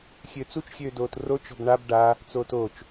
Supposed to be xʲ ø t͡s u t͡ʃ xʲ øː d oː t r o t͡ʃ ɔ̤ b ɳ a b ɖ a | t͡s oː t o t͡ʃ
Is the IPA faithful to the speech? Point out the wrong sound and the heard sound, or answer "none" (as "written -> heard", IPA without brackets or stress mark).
none